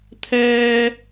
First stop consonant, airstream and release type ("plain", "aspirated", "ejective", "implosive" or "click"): aspirated